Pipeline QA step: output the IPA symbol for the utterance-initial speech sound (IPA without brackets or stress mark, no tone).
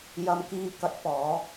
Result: j